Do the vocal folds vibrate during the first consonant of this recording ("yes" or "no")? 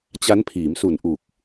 no